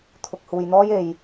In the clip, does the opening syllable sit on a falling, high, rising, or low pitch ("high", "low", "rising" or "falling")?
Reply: low